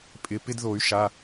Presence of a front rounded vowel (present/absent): present